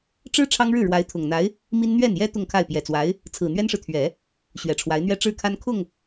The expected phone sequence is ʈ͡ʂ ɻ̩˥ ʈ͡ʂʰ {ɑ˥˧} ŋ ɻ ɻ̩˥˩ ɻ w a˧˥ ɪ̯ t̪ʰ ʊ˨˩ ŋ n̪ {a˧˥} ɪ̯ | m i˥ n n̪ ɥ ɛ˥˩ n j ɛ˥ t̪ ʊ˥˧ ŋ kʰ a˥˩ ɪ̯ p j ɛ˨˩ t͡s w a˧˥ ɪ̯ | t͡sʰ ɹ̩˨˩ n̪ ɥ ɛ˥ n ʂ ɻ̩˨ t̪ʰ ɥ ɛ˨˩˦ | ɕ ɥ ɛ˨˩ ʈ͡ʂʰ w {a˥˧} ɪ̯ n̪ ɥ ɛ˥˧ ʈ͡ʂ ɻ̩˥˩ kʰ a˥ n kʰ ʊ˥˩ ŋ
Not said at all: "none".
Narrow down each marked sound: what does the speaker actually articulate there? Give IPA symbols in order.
ɑ˥, a˧˥, a˧˥

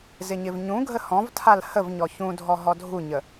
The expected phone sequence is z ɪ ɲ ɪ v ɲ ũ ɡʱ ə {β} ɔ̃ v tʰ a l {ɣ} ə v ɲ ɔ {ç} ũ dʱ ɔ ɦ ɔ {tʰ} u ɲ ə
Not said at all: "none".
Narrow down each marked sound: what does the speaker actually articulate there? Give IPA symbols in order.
h, h, ç, dʱ

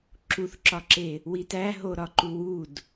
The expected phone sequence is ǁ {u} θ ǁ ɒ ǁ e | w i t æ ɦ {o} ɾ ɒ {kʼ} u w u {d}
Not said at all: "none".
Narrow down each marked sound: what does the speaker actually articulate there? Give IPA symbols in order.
u, o, ǃ, d

